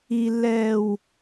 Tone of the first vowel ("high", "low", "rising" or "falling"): low